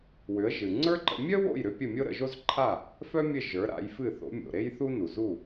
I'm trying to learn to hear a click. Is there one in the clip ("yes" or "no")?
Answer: yes